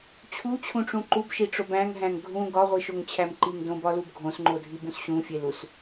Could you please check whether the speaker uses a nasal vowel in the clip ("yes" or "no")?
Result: yes